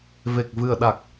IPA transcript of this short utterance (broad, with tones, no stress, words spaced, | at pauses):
ve˨˩k̚vɨ˨˩ə̯ɗa˨˩k̚